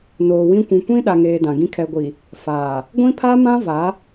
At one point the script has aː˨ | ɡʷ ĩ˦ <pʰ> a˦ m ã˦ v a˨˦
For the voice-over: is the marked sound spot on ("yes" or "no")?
yes